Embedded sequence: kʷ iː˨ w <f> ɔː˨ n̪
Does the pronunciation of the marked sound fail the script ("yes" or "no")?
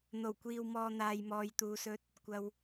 yes